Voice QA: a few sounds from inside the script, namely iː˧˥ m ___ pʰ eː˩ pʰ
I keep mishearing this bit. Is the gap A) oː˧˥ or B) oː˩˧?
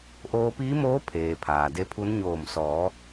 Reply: A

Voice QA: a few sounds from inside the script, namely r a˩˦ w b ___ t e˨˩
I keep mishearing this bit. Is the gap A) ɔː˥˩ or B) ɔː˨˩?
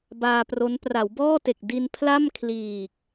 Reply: A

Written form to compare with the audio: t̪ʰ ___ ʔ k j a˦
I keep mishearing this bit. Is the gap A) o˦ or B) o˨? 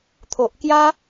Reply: B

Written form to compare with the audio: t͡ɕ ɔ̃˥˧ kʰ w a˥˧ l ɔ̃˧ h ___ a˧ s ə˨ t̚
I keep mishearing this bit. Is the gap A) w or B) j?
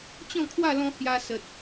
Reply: B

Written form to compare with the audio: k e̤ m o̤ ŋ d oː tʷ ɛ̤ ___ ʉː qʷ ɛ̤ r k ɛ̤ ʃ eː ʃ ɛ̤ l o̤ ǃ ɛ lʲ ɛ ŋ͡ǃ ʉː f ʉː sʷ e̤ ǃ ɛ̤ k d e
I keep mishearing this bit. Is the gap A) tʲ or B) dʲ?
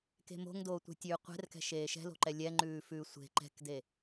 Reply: A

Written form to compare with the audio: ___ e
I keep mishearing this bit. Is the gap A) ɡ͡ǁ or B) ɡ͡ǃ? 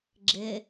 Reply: A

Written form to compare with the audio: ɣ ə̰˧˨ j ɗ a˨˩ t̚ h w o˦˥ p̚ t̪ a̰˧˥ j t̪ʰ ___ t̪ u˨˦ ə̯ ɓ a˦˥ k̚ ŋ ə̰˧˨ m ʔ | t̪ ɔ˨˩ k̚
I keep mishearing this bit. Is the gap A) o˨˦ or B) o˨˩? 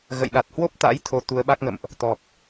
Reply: A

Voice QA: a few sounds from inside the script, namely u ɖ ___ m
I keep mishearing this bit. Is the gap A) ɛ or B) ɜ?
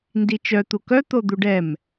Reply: A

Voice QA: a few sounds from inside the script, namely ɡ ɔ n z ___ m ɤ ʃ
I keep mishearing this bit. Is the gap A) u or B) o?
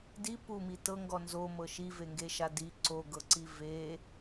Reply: B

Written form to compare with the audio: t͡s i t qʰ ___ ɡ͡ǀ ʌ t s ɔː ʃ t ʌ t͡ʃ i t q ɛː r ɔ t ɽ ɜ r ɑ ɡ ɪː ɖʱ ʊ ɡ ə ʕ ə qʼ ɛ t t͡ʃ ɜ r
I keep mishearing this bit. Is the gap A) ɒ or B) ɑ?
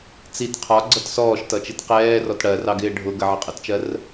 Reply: A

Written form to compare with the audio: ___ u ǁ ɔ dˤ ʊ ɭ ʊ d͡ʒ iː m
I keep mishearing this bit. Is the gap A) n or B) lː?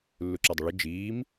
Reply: B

